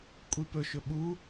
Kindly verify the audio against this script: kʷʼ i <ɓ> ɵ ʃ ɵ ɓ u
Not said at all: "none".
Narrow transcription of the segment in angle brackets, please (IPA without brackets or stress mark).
p